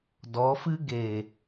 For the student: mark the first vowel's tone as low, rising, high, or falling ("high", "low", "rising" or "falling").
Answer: rising